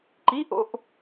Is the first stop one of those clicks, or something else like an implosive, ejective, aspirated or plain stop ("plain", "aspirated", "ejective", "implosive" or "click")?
click